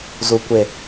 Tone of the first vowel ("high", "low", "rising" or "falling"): low